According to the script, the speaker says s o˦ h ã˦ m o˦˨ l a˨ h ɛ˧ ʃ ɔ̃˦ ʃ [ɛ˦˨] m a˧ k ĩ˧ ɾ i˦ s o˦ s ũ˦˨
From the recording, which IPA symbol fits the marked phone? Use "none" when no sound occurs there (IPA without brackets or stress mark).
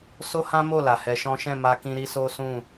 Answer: ɛ̃˦˨